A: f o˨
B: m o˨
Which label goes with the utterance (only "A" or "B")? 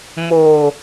B